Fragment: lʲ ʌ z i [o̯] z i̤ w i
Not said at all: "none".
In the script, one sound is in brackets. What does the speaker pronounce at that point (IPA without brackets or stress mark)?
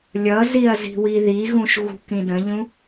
ɐ̯